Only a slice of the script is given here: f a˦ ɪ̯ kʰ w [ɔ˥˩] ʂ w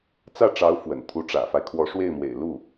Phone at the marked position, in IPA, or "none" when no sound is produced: ɔ˧˥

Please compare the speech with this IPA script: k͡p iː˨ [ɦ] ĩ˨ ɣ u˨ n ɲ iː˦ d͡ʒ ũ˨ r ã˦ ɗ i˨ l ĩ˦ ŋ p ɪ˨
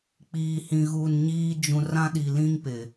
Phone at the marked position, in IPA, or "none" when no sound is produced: h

